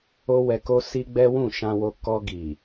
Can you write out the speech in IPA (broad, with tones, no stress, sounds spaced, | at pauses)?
o˦ w ɛ˧ k o˦ s i˦ ɡ͡b ɛ˦ w ũ˦˨ ʃ ã˧ w o˧ k ɔ˧ ɡ i˨